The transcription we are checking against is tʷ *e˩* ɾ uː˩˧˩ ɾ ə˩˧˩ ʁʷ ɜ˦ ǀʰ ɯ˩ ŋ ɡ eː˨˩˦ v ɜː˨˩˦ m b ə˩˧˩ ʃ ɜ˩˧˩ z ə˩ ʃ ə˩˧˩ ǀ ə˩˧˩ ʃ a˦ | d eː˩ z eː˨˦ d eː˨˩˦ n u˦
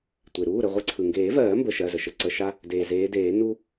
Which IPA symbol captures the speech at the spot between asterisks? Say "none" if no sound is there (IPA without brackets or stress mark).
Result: e˩